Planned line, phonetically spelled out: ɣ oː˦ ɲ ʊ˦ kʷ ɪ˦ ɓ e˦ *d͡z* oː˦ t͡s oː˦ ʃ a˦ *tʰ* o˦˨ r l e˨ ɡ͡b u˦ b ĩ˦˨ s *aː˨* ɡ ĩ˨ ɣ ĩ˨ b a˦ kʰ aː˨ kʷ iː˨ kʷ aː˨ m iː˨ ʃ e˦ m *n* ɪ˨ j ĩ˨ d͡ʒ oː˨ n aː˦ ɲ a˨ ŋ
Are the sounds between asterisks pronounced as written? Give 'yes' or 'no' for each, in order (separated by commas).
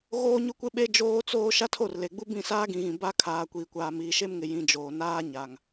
no, yes, no, no